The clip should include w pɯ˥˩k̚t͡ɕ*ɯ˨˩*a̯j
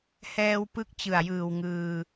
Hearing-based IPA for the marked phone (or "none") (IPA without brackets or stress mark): ɯ˨˩